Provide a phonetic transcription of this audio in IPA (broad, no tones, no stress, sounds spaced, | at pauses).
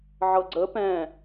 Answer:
ʕ ɤ ɡ͡ǀ ə p ɛ̃